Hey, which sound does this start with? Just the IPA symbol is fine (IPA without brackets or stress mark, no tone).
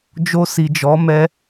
d͡ʒ